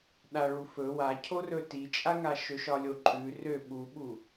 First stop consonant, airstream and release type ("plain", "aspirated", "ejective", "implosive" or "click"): implosive